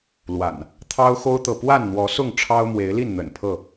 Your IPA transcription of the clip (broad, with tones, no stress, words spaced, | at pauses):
lwa̰˨˩n | t̪ʰɑ˦ʊ̯xo˦ʊ̯t̪ɤ˨ pwa˥˨nn̪wɔ˨˦sʊ˥˨ŋ ʈ͡ʂʰɑ˦ʊ̯mwe˨˦ɪ̯li˥˨nn̪ə̰˨˩n pʰɤ˥˨